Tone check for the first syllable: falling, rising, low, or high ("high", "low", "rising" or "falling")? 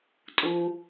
low